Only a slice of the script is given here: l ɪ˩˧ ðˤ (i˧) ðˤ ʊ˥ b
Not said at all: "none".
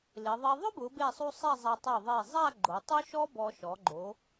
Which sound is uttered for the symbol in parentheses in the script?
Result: e˧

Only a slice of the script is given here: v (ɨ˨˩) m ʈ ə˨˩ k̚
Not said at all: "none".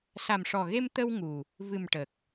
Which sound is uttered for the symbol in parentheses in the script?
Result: ɨ˨˩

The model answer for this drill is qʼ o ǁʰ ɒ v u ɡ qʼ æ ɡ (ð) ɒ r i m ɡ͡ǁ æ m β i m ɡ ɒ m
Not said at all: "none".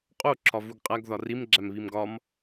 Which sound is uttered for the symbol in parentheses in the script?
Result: ð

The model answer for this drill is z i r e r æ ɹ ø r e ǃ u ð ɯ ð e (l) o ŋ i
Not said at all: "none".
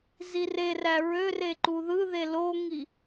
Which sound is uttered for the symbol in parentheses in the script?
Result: l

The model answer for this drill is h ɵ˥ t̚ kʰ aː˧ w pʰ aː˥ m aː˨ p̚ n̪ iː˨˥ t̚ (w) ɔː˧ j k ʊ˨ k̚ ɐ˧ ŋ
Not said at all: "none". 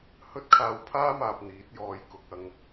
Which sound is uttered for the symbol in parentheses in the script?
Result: j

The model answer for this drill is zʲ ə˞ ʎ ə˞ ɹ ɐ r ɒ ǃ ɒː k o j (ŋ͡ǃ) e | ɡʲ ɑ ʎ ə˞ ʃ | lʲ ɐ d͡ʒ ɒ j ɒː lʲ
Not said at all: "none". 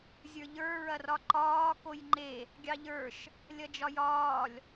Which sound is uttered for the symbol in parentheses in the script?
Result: ŋ͡ǃ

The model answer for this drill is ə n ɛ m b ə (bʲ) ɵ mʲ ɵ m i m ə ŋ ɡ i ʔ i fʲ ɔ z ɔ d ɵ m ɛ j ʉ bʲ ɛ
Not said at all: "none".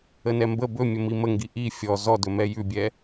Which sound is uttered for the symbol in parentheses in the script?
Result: b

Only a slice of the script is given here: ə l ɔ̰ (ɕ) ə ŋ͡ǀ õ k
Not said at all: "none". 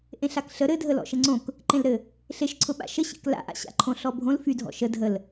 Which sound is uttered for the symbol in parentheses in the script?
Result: ʃ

